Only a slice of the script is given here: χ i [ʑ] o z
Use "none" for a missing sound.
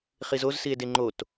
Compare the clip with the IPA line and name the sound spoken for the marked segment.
z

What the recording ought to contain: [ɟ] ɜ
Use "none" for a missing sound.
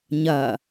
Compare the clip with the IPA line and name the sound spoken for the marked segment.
ɲ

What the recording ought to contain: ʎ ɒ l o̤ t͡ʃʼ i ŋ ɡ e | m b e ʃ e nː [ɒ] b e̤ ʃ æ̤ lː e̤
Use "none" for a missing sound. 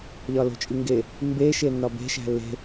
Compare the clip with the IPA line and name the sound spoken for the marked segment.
ɒ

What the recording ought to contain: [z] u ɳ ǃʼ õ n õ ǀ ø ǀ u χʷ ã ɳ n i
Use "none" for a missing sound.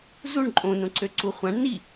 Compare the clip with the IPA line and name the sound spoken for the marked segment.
z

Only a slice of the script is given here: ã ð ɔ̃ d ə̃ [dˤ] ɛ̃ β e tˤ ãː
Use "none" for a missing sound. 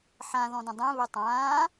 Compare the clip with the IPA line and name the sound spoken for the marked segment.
dˤ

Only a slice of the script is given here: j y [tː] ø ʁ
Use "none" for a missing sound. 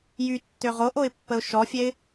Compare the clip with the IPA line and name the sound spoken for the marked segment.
tː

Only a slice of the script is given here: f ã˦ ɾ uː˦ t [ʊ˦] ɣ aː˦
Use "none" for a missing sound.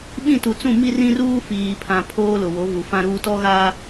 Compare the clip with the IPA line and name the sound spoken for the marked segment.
ɔ˦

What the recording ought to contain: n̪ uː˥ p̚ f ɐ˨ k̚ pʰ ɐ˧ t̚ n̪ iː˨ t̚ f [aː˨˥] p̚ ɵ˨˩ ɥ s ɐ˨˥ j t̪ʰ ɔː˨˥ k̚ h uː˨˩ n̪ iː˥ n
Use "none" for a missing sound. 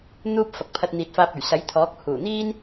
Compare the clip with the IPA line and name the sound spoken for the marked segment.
aː˧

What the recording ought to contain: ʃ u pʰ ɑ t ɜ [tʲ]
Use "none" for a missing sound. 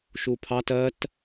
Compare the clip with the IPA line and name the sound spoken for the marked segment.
t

